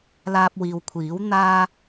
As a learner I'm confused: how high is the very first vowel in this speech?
low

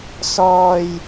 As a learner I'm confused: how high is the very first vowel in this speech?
mid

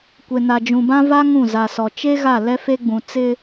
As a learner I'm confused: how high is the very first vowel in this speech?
mid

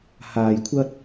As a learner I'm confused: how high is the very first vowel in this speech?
low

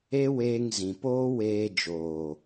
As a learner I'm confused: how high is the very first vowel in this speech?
mid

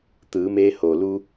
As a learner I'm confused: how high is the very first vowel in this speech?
high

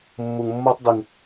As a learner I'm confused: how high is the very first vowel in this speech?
high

